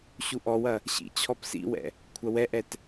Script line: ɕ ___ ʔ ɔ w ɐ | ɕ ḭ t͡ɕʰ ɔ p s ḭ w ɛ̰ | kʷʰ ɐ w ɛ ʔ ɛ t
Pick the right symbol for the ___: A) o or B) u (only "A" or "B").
B